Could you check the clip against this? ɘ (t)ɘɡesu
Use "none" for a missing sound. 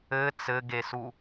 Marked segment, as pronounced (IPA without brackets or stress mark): t͡s